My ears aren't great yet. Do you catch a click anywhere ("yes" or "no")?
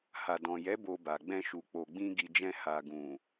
no